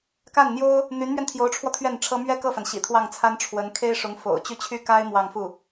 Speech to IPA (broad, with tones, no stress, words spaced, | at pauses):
ka˥˩nn̪jo˥ʊ̯ | n̪y˧˥nmɥɛ˧nt̪ʰjo˧˥ʊ̯ʈ͡ʂʰwɔ˧ t̪ʰɥɛ˥˩nʈ͡ʂʰɤ˥ mɥɛ˥kɤ˥˩fa˩n ɕḭ˨˩t̪ʰwɑ˥˩ŋt͡sʰa˥n ʈ͡ʂʰwə˧˥n kʰe˥ɪ̯ʂʊ˧˥ŋ fo̰˨˩ʊ̯t͡ɕy˥˩t͡ɕʰy˥ ka˥ɪ̯ mwɑ˥˧ŋ fu˥˩